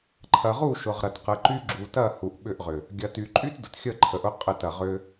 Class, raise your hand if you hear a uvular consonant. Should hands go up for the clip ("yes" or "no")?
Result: yes